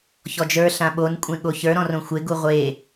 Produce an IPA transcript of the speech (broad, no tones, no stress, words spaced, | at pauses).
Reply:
çɔd͡ʒə˞ ɬãɓon kʷʼẽɠoçə˞ ɾɔ̃rõxʷe ɡuʁʷe